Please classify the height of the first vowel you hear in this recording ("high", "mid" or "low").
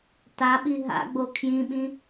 low